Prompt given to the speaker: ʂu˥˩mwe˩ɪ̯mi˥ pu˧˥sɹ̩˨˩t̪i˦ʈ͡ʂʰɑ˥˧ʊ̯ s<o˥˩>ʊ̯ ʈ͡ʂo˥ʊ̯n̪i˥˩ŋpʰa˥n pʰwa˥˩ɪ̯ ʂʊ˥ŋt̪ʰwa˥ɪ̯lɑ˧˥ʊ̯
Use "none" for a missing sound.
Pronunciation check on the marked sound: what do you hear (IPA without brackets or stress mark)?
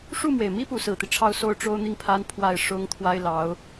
o˥˩